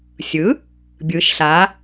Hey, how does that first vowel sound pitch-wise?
rising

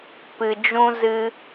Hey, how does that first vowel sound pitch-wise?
low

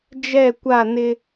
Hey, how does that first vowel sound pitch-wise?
falling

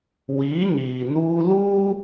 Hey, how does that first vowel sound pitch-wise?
rising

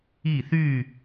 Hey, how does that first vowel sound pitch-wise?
falling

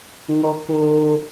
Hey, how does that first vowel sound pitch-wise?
high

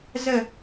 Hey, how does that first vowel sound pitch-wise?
falling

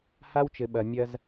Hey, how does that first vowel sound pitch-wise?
high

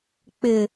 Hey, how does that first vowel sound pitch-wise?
low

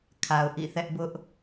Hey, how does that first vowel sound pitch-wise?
low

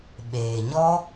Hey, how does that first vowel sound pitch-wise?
low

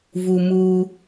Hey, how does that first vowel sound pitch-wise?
high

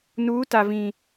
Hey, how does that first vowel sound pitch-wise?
rising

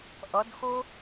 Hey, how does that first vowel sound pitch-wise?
rising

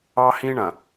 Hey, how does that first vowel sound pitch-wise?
high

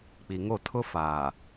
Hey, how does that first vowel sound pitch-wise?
low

